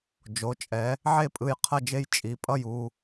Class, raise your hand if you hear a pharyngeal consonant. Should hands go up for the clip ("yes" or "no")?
yes